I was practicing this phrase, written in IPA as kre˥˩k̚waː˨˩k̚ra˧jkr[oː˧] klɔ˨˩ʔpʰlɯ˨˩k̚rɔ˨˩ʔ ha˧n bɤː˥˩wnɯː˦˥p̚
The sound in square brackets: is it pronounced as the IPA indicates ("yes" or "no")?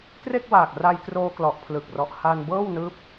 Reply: yes